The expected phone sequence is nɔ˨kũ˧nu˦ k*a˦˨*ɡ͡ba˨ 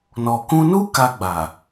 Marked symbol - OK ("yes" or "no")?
no